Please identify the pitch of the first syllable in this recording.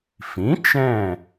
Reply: rising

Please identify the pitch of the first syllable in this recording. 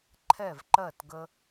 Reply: falling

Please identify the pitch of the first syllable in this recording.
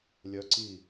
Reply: rising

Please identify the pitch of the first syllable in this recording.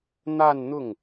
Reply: falling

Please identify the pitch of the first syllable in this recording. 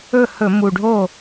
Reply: falling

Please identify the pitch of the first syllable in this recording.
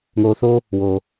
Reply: low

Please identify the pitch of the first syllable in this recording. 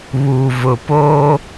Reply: low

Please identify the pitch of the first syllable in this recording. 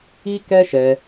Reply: high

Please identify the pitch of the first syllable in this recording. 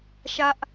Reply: high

